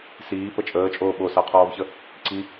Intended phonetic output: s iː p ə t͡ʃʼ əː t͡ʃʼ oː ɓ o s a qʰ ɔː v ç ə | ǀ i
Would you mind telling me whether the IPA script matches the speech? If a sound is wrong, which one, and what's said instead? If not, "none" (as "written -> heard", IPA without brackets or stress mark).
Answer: none